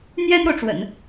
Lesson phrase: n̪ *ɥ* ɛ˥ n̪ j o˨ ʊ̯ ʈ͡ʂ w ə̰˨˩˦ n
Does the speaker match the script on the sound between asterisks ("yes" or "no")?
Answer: no